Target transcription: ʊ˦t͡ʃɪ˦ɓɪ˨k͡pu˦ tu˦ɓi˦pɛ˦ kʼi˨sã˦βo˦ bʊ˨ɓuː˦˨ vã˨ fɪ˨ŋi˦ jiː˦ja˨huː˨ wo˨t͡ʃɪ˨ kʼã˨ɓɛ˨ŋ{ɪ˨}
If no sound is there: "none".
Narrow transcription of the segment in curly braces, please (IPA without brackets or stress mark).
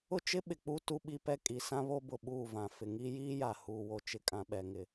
ɪ˨